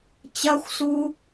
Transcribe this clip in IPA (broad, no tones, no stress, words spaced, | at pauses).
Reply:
t͡ɕɐxʷsu